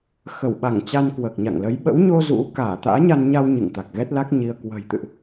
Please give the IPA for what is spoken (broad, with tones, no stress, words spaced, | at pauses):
xə˧˩wɓa˧˩ŋ t͡ɕa˧nkwəː˨˩k̚ɲa̰˧˨ŋlə˨˦j ɓə̰˧˥wɲo˧ zṵ˧˥ kaː˧˩t̪a̰ː˧˥ɲa˧nɲa˧w ɲɨ̰˧˨ŋt̪a˨˩k̚ɣɛ˦˥t̚la˦˥k̚ ɲi˧ə̯ kwə̤˨˩jt̪ɨ̰˧˨ʔ